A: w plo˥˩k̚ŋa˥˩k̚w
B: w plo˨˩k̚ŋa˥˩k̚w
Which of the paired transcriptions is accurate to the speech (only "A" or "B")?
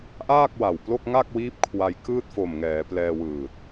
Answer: A